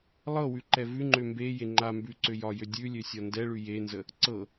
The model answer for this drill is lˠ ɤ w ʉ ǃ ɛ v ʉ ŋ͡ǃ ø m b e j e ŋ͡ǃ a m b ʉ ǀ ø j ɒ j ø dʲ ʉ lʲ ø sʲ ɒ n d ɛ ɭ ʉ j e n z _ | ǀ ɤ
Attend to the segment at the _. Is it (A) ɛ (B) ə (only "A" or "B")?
B